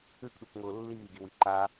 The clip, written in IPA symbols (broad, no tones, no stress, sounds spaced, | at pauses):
ʉ k ɗ u k ŋ ʊː lː iː ɡ i w i ǃ aː